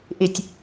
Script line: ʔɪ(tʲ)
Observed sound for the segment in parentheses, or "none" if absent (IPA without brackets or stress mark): tʲ